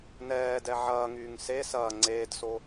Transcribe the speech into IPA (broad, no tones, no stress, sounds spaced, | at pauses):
n ɛː d ɛ ʕ ɐː ŋ yː ŋ s e s ɐː ŋ͡ǀ eː d s o